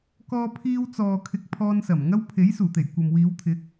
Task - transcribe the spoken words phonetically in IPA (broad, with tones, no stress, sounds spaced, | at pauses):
k ɔː˧ pʰ iː˧ w t͡s ɔː˨ kʰ ɪ˧ k̚ pʰ ɔː˧ n s ɐ˨˩ m ŋ ɐ˥ w pʰ e˨˥ j s uː˨˩ t̪ e˨˩ j kʷ ɐ˨ m w iː˨˧ w t̪ʰ ɪ˨˥ k̚